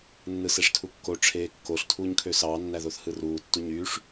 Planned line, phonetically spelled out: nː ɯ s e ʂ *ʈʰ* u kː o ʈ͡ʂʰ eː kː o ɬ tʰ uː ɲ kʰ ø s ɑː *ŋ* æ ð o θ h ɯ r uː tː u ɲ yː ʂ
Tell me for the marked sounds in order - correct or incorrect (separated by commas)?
incorrect, incorrect